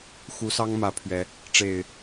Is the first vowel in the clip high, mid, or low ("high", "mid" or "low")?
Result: high